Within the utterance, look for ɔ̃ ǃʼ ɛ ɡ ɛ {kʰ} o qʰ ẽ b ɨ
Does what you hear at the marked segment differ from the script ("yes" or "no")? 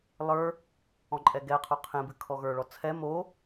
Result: yes